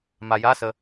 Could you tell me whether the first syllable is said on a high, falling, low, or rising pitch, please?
low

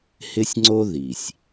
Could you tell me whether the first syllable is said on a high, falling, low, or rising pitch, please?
high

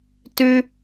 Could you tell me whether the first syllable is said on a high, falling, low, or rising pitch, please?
high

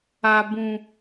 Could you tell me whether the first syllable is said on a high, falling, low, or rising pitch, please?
low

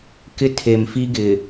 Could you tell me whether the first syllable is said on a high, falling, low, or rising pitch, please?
high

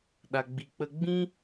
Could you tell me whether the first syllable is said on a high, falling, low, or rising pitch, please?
low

